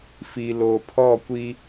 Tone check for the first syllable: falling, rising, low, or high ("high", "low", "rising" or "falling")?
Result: low